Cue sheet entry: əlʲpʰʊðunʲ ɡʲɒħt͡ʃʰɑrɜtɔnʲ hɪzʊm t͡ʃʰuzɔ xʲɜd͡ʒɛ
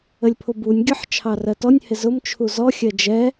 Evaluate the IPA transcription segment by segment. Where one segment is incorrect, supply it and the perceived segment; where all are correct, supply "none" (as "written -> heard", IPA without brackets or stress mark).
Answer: ð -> b